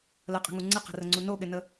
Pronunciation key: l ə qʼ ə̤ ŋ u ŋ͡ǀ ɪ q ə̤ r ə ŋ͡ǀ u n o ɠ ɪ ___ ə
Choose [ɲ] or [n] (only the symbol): n